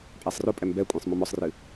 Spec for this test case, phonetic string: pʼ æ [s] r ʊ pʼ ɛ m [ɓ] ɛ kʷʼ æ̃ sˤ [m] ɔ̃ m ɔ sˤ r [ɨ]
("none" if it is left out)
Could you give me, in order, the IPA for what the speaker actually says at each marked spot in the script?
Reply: sˤ, b, m, ɨ

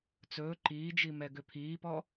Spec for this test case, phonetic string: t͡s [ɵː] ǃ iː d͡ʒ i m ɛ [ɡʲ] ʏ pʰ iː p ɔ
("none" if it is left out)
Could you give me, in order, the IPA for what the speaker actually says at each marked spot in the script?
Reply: ɵː, ɡ

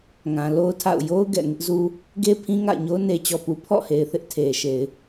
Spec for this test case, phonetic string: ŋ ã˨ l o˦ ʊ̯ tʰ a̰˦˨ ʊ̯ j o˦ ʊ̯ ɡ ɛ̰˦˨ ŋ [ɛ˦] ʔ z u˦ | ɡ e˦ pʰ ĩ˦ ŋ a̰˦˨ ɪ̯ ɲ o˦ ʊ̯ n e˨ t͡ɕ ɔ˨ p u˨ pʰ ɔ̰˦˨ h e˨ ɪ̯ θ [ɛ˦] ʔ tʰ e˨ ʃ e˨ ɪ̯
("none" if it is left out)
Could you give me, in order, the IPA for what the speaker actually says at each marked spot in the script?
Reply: ɪ˦, ɪ˦

